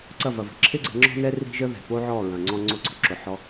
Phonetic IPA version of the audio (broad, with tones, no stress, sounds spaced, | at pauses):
ǀ ɐ˦˨ v ɐ˨ v ə̤˨ ǁʰ ɪ˦ ɡ͡ǀ ɛ̤˧ ŋ͡ǁ ɔ̤˦ n ɛ˦ r i̤˦ ʒ ə˦ ð ɛ̤˨ p o˦ ʕ ɔ˦˨ ɹ ɐ̃˨ ŋ͡ǀ ɔ̃˧ ŋ͡ǀ o˧ ǀ ɔ̤˧ ǁ ʊ˨ ħ ɔ˧